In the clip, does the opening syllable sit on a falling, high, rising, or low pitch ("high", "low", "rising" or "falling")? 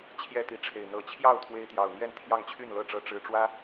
high